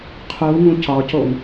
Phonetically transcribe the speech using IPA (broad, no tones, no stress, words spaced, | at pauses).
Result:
qʰu ŋũcɒcoŋ